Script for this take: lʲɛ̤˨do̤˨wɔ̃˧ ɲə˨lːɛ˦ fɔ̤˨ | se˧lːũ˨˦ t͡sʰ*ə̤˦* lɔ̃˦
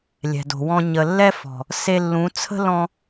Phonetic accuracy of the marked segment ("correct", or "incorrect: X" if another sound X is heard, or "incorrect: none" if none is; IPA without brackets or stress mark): correct